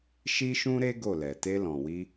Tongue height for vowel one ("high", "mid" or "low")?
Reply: high